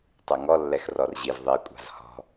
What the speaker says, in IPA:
tˤɛŋɔlːɛx rɔrʑiv ðˤi kʷʼa̤zhɔ̤

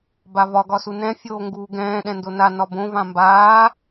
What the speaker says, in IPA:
bavɒ ɡɒsunɛ̃ fʲoːŋɡuːɡɛ̃ː ɗɛ̃ndona nɒbõ vãmbaː

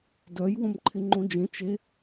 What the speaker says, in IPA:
dœj wõmǃʰɪŋ͡ǃõd͡ʒẽ t͡ʃe

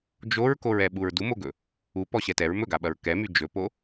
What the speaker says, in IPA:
d͡ʒoɹkoɹɛ ɓuɹdumoɡɵ | u pɔɕɛtɛɹ mɵɡaɓɐɹ kɛmy d͡ʒɵpo

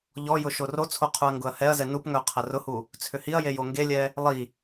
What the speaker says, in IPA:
ʎɔjʊ ʃorot͡sʰo qʰuɐ̯ŋɡʊɐ̯hɛɐ̯zɛ nupŋœ qʰɐrʊhu | t͡sʰʏhiɐ̯je joŋɡelʲɛ | lˠi

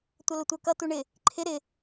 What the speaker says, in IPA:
tʷʌlʊtʷə˞kʌ tuɳɪ | ǃʰɪ ɾɪ

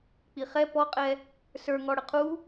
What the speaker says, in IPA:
k͡piχɛ pɔqʼɛ | sə˞ŋɔ ɽəqʰu

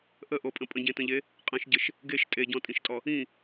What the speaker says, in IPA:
ʔəʔopʼə̃ pʼə̃ɟẽtə̃ʎe | qʼə̃ʃɟəʃ | ɡeʃ tʼeɟɔ̃tʼĩʃtʼɔ | ĩ

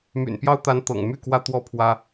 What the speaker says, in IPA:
my̰˨˩npjɑ˦ʊ̯t̪a˨˦n t̪ɤ̰˨˩ŋ my˥˨kwä˦ t̪wɔ˥˨pʰwä˦

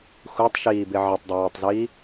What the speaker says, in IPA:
xutˤʃiːbɪ ʕɪtˤdˤɪwatˤziː

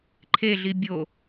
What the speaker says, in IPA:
ǃʰeɮi bʲo

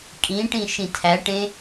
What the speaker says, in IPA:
kʼĩʈĩ ʃĩtʰæʈẽ

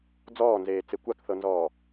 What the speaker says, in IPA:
d͡zɔːnzeːt͡se kʷakθɤnzɔː

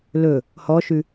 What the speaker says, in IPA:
lɵ | hɔʃʉ

